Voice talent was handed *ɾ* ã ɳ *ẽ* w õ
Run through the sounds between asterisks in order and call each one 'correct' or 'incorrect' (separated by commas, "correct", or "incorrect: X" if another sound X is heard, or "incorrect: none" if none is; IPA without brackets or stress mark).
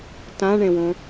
incorrect: t, correct